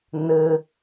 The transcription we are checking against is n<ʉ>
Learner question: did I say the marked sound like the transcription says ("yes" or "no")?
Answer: no